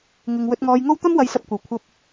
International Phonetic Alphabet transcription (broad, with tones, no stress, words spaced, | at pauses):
ŋɪ˨ŋ wɵ˧t̚ŋɔː˧jŋo˥w t̪ɐ˥mwɐ˧jsɐ˧p̚kʷɐ˨w kʷʰɐ˧p̚